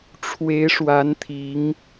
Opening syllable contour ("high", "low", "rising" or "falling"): rising